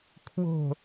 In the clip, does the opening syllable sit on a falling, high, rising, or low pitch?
falling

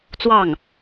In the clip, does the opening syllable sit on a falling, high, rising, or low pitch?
falling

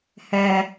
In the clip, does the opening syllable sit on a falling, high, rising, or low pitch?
low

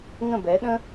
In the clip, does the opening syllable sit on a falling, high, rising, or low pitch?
falling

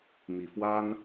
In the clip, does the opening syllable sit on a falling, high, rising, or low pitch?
low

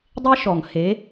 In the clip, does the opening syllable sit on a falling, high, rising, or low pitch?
high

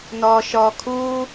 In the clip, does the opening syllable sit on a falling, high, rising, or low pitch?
low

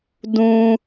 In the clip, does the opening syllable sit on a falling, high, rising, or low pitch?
high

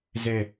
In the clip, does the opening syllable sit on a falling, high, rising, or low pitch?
low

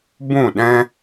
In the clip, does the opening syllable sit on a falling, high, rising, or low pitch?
falling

